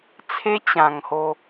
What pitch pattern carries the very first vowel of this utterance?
high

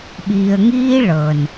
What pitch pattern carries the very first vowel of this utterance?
low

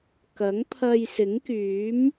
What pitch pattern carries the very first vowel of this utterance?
rising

